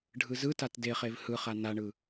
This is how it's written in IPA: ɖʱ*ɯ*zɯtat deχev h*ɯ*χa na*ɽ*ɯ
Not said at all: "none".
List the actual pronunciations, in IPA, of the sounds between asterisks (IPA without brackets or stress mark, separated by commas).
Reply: ɯ, ɯ, ɳ